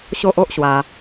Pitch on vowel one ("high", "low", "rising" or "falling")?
high